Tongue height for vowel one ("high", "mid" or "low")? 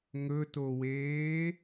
mid